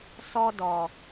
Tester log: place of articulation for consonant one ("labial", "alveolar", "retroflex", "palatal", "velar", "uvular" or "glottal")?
alveolar